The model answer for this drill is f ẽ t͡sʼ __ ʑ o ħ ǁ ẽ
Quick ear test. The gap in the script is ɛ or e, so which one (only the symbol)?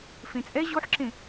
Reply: ɛ